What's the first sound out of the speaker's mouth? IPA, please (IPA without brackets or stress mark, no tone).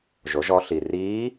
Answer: ʒ